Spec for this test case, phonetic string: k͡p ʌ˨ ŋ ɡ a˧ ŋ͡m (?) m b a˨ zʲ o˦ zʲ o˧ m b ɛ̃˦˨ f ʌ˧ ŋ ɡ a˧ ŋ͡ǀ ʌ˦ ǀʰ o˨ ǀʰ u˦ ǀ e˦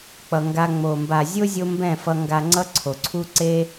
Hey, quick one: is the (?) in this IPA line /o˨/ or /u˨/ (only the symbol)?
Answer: o˨